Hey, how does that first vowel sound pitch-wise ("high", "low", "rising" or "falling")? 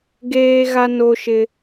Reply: high